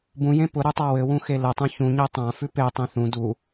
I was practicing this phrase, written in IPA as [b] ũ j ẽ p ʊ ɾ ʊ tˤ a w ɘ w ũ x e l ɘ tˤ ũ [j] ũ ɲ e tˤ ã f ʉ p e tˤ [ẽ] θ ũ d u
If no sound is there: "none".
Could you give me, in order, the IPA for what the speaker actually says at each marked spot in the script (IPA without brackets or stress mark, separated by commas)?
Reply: b, ç, ẽ